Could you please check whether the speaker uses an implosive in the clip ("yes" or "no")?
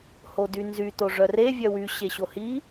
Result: no